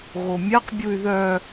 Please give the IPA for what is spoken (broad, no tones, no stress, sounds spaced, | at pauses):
ɣ o mʲ a q bʲ u y̯ ð œ